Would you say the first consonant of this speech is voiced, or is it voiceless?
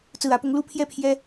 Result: voiceless